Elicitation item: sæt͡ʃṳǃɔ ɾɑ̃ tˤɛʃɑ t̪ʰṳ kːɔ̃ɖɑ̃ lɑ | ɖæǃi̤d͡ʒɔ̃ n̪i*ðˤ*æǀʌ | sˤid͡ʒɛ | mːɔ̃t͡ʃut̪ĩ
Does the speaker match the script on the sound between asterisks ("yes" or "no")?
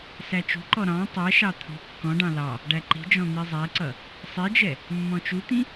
no